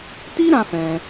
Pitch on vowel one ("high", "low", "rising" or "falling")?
high